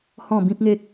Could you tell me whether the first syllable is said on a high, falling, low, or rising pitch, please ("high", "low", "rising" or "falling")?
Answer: falling